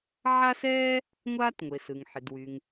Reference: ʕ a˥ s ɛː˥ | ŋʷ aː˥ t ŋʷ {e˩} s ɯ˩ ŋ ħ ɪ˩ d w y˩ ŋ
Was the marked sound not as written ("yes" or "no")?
no